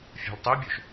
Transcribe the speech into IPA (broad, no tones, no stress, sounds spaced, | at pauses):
fʲ a̤ l tˤ i bʲ o ʃ